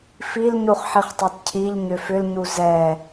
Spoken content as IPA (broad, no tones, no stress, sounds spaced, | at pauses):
f i l ɲ u χ ħ i χ tˤ ɛ t cʰ i ʎ ɲ ʏ f ʏ l ɲ u z ɛ